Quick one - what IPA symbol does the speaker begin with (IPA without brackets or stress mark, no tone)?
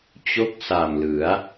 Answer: t͡ɕ